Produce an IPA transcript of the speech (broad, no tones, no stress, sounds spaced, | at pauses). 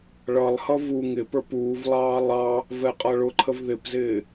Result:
ɭ ʌ lˠ h ʌ v u ŋ ɪ p ə˞ p uː v lˠ ɑː lˠ ɑ | v ɛ qʼ ʌ ɭ ʊ ǃʰ ə v ð ɪ p z ɪː